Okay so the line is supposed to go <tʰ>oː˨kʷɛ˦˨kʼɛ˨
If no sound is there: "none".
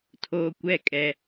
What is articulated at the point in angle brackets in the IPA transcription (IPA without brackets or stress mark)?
tʰ